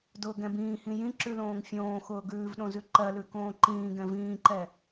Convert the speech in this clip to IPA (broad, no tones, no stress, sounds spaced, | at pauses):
d ʊː ɡ ɛ̃ b ĩː h ĩ j ĩ ǁ ʉ l õː ŋ fʲ õː x ʊː ɡ ʉː v ɗ õ z ʉ ǃ ɜ l ʉ k õː ǃ ĩː ɡ ɛ̃ v ĩː ǃ ɛ